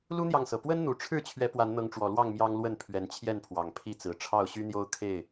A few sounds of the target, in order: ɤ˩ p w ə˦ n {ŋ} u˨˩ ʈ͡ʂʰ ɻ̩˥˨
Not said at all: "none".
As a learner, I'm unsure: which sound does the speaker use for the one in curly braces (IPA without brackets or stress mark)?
n̪